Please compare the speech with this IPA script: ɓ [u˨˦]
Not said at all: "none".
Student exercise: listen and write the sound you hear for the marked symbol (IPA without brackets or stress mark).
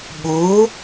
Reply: u˨˦